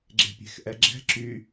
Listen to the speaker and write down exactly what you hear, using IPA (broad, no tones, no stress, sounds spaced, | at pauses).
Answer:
ɡ͡ǁ e̤ pʲ e̤ x ʔ ɛ ɡ͡ǁ ɛ̤ ǁ y